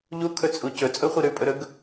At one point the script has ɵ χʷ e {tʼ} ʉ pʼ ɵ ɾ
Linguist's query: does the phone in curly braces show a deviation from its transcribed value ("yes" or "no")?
yes